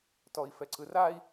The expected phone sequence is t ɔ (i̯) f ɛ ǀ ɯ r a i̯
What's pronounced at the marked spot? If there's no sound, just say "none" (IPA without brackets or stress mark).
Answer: i̯